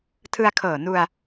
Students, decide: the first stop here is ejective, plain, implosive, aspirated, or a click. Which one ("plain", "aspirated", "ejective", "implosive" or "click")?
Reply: aspirated